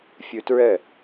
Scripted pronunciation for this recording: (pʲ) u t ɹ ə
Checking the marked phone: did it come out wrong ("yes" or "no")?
yes